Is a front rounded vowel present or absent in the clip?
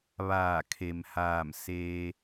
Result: absent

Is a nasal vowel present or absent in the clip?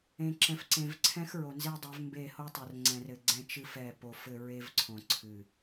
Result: present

